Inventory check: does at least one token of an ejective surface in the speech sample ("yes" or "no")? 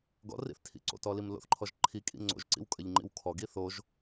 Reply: yes